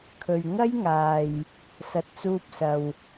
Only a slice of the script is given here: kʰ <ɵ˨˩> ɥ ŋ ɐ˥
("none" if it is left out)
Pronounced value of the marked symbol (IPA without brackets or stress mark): ɵ˨